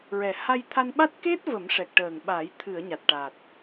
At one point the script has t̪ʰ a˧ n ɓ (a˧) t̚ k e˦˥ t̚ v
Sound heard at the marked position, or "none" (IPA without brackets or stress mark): a˦˥